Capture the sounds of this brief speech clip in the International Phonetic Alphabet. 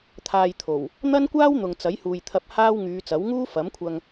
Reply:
t̪ʰ aː˧ j t̪ʰ o˨˩ w | n̪ ɐ˥ n kʷ aː˥ w n̪ ʊ˨ ŋ t͡s ɐ˨˥ j h uː˨ j t̪ʰ ɐ˧ p̚ h aː˥ w ŋ yː˨˧ t͡s ɐ˨˥ w ŋ uː˥ f ɐ˨˥ m kʷʰ ɐ˧ ŋ

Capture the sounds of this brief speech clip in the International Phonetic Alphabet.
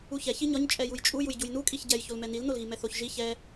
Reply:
u ç ɛ ç i ɲ ɒ ɲ t͡ʃʼ ɛ j u j t͡ʃʼ u j u j ɟ u j n u kʼ i ç ɟ ɛ j ç o l m ɛ n i l n o l ɣ i m ɛ θ o ç ʒ i ç ɛ

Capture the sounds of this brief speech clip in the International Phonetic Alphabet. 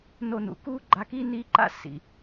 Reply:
n o˧ n ṵ˩ k uː˥ ɡ͡ǃ a˧ k iː˥ n iː˥ ǃ a̰˥ s ḭ˩

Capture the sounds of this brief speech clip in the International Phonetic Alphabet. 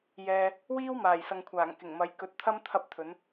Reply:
j ɛː˧ | w iː˥ w m aː˨˩ j s ɐ˨ ŋ kʷʰ aː˨˩ ŋ k ɪ˨˩ ŋ m ɐ˨˥ j k ɵ˨˥ t̚ t̪ʰ ɐ˥ m t̪ʰ ɐ˥ p̚ t̪ʰ ɵ˨˥ n

